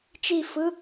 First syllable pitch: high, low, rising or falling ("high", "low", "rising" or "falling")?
falling